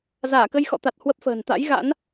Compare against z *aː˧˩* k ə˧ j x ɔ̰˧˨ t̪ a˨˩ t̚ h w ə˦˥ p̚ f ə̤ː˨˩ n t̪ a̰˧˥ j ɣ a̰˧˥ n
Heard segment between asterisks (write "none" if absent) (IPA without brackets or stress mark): aː˧˩